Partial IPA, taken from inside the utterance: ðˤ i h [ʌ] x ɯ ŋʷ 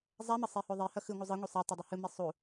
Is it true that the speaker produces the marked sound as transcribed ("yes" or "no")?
yes